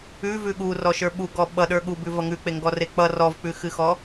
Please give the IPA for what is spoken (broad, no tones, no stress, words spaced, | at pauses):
ʉvʉ ɠurɔʃə˞ ɓuɡɔ ɓʌɗə˞ ɠubʉvʌ ŋʉk͡peŋɡɔre k͡pʌ rɔvk͡pʉxɨxɔ